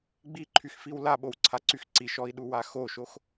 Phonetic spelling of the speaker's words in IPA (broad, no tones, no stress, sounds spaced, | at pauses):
ɡ͡b i ǃʰ y x f i w l a ɓ o w ǀʰ a ǀ y x ǀ i ʃ ɔ i̯ ɗ u w a x o ʃ o x